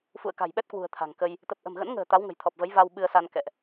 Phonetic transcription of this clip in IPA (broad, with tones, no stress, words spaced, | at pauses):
fṵ˧˨ə̯ka̤˨˩jɓɛ˦˥t̚kwṳ˨˩ə̯ t̪ʰa̤˨˩ŋkə˧j | t̪ə˨˩p̚ʔə̤˨˩mɣə̰˧˥nŋə̤ː˨˩ t̪a˨˦wŋə̤˨˩jt̪ʰɔ˨˩p̚və˨˦j va˧wɓɨ˧ə̯sa˧n kɛ̰˧˨ʔ